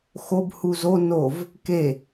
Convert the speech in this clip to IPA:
x o b h u z o n o v | k e

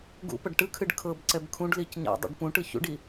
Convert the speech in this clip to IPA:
ɡ ṵ p ɐ ɖ ʈ ɯ kʰ ɨ ɖ kʰ ɤ b ǀ ɛ b kʰ ũ ɖ l i c ɲ a̰ dˤ ḭ ɖ p ũ ʈ ɯ ç ṵ ɖ i

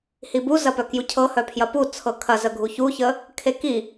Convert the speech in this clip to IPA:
h i b u z ɐ p œ k j u cʰ ɤ h œ pʰ j ɐ p u t͡sʰ ɤ kʰ ɐ z ə ɡʱ u ç u ç ə | kʰ e k i

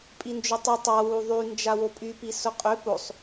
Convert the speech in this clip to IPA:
pʼ i n d͡ʒ ʊ tˤ ʊ tˤ a w u ðˤ y n d͡ʒ a w o pʼ y p i s ʊ qʼ ʏ p o sˤ

